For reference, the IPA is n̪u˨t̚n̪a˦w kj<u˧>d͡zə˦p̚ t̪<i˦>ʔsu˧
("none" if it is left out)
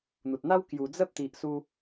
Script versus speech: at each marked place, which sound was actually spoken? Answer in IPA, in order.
u˨˩, i˨

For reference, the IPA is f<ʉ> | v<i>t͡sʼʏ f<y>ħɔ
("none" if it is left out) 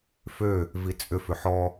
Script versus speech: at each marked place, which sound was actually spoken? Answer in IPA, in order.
ø, i, ʏ

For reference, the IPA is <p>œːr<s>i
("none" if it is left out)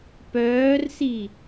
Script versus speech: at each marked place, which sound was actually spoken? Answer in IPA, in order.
p, s

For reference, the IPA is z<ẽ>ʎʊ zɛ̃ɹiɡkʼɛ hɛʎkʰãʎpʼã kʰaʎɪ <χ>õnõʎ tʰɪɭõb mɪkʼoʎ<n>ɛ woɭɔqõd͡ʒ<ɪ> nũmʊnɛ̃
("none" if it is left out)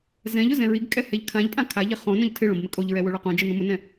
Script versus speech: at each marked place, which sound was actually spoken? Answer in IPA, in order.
ɛ̃, χ, ɹ, i

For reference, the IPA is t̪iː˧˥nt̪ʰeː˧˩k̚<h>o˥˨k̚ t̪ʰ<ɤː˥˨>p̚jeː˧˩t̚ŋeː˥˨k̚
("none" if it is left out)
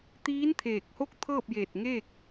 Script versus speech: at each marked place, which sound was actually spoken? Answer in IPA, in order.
h, ɤː˥˨

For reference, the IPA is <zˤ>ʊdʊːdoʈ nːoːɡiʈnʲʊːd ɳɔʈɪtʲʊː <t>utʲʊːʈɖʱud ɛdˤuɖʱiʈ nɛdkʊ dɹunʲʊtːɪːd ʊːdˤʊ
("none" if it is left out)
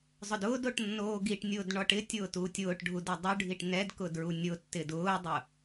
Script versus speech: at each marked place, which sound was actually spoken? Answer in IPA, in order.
zˤ, t

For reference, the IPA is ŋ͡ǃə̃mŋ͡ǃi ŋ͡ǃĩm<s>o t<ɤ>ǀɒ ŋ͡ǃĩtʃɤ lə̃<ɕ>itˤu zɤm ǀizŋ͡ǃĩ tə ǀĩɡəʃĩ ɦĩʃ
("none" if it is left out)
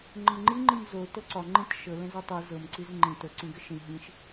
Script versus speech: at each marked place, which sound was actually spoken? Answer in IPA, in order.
z, ɤ, z

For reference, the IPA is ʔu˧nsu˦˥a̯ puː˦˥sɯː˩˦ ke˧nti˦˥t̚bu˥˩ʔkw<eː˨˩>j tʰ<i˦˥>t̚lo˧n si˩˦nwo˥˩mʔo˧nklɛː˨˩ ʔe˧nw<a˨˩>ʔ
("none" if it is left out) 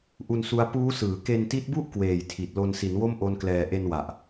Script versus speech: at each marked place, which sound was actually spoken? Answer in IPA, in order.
eː˨˩, i˨˩, a˨˩

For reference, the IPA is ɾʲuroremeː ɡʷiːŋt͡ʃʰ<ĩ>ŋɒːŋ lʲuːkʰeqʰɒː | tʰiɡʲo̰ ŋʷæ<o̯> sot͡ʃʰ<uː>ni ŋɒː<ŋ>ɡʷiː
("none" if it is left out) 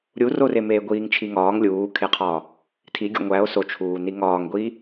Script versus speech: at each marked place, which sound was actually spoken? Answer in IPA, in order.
i, o̯, uː, ŋ

